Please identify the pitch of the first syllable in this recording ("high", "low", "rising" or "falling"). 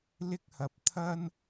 high